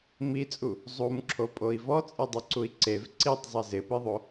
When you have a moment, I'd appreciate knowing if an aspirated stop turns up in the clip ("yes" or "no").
yes